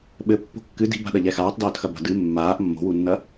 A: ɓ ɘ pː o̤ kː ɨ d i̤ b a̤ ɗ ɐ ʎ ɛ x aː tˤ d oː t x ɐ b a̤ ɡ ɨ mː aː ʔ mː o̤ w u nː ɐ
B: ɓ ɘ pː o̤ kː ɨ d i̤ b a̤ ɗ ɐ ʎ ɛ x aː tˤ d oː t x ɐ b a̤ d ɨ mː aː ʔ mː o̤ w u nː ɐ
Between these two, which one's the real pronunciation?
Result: B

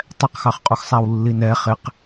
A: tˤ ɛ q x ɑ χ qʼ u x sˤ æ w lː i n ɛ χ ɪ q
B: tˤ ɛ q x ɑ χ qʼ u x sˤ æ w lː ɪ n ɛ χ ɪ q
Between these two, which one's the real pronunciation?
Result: A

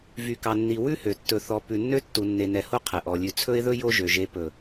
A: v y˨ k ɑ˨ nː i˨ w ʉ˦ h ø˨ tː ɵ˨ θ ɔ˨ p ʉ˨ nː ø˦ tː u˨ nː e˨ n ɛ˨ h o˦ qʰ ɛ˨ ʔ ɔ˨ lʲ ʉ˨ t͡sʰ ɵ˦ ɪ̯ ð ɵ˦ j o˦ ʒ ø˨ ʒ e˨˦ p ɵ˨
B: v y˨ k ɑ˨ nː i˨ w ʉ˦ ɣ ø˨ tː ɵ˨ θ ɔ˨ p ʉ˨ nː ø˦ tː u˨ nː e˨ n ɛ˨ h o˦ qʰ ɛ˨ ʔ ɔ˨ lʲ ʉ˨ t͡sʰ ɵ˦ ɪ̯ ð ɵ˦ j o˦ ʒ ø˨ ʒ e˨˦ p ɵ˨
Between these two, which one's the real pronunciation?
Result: A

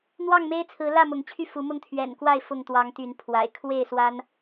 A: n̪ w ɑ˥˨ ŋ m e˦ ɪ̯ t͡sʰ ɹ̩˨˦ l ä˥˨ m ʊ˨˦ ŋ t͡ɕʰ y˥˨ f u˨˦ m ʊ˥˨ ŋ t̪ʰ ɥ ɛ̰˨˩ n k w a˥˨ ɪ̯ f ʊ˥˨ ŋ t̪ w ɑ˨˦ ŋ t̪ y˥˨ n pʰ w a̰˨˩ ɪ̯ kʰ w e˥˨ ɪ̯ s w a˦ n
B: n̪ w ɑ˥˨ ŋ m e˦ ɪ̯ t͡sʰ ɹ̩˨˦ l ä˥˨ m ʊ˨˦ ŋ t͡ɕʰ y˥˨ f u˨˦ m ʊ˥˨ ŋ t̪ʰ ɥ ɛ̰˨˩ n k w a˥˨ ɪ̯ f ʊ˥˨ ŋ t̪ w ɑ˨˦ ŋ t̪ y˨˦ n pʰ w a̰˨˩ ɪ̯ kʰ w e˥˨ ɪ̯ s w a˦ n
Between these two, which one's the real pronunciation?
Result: B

